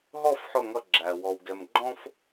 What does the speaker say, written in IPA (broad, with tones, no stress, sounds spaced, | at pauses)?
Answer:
ɦ ɔ˦˨ f ħ ʊ˦˨ ŋ ʌ˦˨ ɡ͡ǁ æ˨ w ɔ˨ w ɡ ɛ˨ m ɡ͡ǃ ɔ̃˦ f